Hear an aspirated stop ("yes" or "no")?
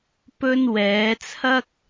yes